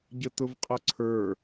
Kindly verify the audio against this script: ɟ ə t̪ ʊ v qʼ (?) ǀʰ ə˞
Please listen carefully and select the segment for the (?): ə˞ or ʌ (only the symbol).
ʌ